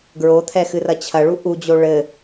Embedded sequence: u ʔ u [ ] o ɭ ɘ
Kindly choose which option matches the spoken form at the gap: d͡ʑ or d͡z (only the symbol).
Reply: d͡ʑ